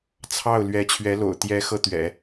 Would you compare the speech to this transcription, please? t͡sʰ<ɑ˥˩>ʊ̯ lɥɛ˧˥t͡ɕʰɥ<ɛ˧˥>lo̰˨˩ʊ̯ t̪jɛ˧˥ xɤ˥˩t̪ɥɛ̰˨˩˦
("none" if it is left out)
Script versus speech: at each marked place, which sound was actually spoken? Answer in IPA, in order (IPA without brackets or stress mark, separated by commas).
ɑ˥˩, ɛ˧˥